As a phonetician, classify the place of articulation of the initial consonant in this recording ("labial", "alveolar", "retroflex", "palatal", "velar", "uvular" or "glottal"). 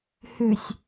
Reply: glottal